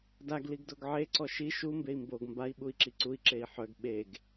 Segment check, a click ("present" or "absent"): present